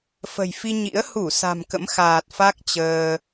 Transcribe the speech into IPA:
f ə̤˨˩ j f i˧ ɲ ḭ˧˥ ə̯ h u˧˩ s a̤˨˩ m k ə̰˧˥ m x aː˨˩ t̚ f a˦˥ k̚ t͡ɕ əː˧

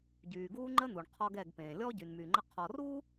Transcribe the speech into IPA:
ɟ yː˨ ɡ uː˦ ŋ͡ǃ ə˦ n̪ u˨ ɳ qʰ ɔ˦ ɡ ɛ˦˨ ɡ p ẽː˨ lʲ ɔ˦ ɟ y˨ n m yː˨ ŋ͡ǃ ə˦ qʰ ɔ˨ r uː˦

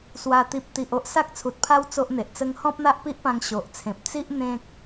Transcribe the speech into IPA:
s w a˨˩ t̪ i˨ p̚ t̪ i˨ ʔ o˦ ʔ s a˦ k̚ t͡sʰ u˨ t̚ pʰ a˦ w t͡s o˦ ʔ n̪ e˨ ʔ t͡s ə˦ ŋ h ɔ̃˦ p̚ n̪ a˦ ʔ p i˦ ʔ p ã˧ ŋ ɕ o˨ ʔ t͡sʰ ẽ˨ p̚ t͡s i˦ ʔ n̪ ẽ˦ k̚

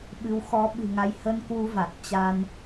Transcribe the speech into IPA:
ɓ ɨ˨˦ w x ɔ˨˦ ɓ ɨ̤˨˩ ŋ a˨˦ j h ə˧ n k w u˧ v a˨˩ t̚ t͡ɕ a˧ n

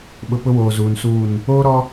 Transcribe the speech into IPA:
ɓ ʊ˨ p ʊ˦ w oː˨ z uː˨ n s uː˦˨ n | oː˦ ɾ ɔ˦

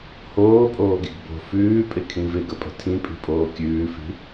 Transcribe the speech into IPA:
h oː pʼ oː ɡ i ɡ b o̤ f ʉː pʼ ɪ kʰ ĩ v ɪ ɡ ə pʼ ə̤ tʰ ĩ pʼ i̤ pʼ oː kʲ ʉː f i̤

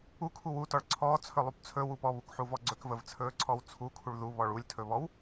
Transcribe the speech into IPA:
u kʰ u w u t ɔ ɭ ǀʰ ɔː t͡sʰ ɵ lˠ u p t͡sʰ ɵ w u p ɔ β u k ħ u v ɔ ɡ͡ǀ ɵ k v ə v t͡sʰ ɵː ǀʰ ɔ w t͡sʰ u kʰ u ɭ ð u β ɔ ɭ u lʲ tʰ ɵ β ɔ w

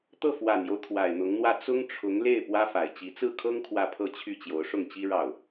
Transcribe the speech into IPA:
t̪ ɤ˥˩ f w a˨˩ n j o˦ ʊ̯ t̪ʰ w a˨˩ ɪ̯ n̪ ʊ˧˥ ŋ n̪ w ä˥˩ t͡s ʊ˥ ŋ ʈ͡ʂʰ ʊ˧˥ ŋ l e˥˩ ɪ̯ p w ä˥ f a˨˩ ɪ̯ t͡ɕ i˧˥ t͡s ɹ̩˥˩ kʰ ɤ˥ ŋ kʰ w ä˥˧ pʰ ɤ˥˧ t͡ɕʰ y˥˩ t͡ɕ j o˧˥ ʊ̯ ʂ ʊ˥˩ ŋ t͡ɕ i˥ ɻ ɑ˥˩ ʊ̯

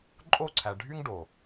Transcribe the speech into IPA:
ǃʼ o˦˨ ǀʰ æ˨ ɖʱ y˦ ŋ ɖ o˨

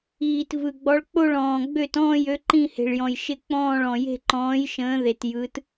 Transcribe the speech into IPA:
iː˩ t v ɯ˩ ɡ͡b ɔ˩˧ ɭ k͡p o˧˩ ɭ ɔ̃ː˩ ɡ͡b ø˧˩ t ɔ̃ː˧˩ j ø˩˧ ǃ ĩ˧˩ h e̤˩ ɭ j ɔ̃˩ j ʃ ɪ˧˩ k͡p ɔ̃ː˧˩ ɭ ɔ̃˩ j e̤˧˩ ǃ ɔ̃ː˩˧ j ʃ ə̃ː˩˧ ð e˩ t j ɯ˩˧ t

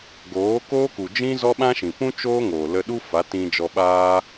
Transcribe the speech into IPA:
ɡ oː˨˦ k oː˦ k u˨ d͡ʒ ĩ˦ z ɔ˦ ɓ ã˦ ʃ ĩ˨ p ũ˦ t͡ʃ oː˦ ŋ oː˨ l ə˧ ɗ u˦ f a˨˦ t ĩ˧ d͡ʒ ɔ˧ ɓ aː˦

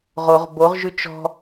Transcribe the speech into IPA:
ʁ o ʁ b o ʁ ʒ ʉ t͡ʃ ɔ̤

